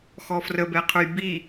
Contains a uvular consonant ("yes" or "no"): yes